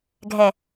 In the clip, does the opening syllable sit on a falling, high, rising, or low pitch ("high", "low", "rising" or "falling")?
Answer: low